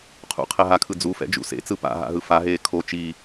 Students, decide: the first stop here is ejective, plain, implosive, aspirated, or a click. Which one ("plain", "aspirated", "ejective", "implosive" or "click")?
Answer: aspirated